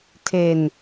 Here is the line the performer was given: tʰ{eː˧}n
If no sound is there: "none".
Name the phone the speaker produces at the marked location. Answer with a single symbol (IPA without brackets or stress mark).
eː˧